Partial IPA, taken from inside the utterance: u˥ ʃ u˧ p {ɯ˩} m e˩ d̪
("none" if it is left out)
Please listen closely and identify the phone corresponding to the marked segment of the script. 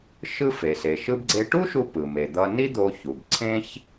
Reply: ɯ˩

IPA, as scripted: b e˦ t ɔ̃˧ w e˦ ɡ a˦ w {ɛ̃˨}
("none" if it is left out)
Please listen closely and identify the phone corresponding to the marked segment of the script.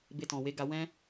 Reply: ɛ̃˦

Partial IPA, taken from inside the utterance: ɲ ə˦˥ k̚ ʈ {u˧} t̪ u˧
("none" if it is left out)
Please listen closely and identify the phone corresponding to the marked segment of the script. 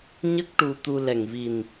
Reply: u˧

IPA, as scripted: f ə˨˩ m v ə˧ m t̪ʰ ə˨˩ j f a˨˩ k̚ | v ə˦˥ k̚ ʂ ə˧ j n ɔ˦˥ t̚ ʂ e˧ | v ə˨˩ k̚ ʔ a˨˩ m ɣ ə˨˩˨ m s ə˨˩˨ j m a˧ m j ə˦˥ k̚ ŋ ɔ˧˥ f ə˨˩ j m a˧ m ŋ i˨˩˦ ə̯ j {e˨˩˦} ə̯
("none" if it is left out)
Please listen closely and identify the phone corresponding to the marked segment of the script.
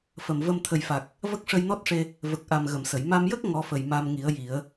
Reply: i˨˩˦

